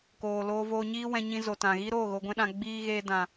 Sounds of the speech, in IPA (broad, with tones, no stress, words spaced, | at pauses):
koː˨loː˧voː˧ɲiː˦ wɛ̃˧ɲĩ˧zo˨ tã˨ɣi˦ɾoː˦˨ ɣo˧ɡʷɛ̃˦ɗã˧ ɡ͡biː˧ ɣeː˧dã˨